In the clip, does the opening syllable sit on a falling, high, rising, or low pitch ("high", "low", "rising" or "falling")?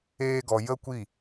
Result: high